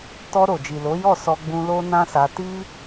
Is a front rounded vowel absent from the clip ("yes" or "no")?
yes